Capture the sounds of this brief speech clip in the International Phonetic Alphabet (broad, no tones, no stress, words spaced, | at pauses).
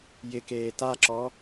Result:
jɪkeː taǁɔ